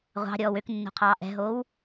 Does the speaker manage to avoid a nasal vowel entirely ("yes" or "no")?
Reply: yes